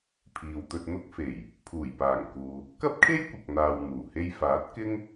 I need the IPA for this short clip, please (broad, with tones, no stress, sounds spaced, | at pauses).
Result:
pʰ iː˨ w t̪ ɵ˧ t̚ n̪ ʊ˥ k̚ f e˨˩ j | pʰ uː˨˩ j p aː˨˩ ŋ k uː˨ | k ɐ˥ p̚ kʰ e˥ j kʷ ɐ˨ k̚ n̪ aː˨ w n̪ uː˨˩ h e˥ j f aː˨˥ t̚ k ɪ˥ ŋ